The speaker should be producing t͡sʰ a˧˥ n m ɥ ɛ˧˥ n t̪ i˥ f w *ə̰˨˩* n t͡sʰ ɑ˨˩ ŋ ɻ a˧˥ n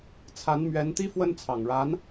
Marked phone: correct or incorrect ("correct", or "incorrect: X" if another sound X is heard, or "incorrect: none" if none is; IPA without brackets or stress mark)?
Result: incorrect: ə˥